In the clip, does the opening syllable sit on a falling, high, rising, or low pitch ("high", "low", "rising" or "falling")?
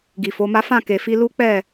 low